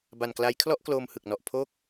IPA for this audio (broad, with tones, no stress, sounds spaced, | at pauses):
b a˨˩ n k l a˦˥ j kʰ l ɔ˥˩ ʔ k l oː˧ m h ɯ˨˩ k̚ n ɔ˨˩ ʔ pʰ oː˥˩ k̚